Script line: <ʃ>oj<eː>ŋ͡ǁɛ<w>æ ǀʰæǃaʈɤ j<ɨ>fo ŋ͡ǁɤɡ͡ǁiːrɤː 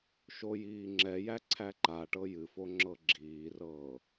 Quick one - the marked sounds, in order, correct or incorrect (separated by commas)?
correct, incorrect, incorrect, correct